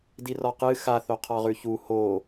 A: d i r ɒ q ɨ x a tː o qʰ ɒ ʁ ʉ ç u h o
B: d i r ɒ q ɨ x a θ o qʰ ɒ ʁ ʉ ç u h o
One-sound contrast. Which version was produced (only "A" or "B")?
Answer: B